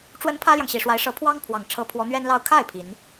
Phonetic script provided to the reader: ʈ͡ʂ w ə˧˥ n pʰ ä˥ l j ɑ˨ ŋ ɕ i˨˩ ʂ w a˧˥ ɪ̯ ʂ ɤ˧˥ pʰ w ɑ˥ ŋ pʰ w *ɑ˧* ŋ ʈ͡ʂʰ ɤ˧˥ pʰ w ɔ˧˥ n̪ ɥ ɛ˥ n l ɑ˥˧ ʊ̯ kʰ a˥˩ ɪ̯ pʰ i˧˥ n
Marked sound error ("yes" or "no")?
yes